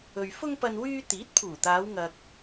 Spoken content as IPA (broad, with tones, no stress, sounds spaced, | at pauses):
ɵ˨ ɥ f ʊ˥ ŋ p ɐ˧ n w yː˥ t̪ iː˨˥ t̚ pʰ uː˨˩ t̪ aː˨˧ w ŋ ɐ˧ k̚